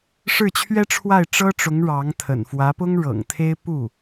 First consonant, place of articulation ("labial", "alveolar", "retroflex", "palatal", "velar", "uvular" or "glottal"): retroflex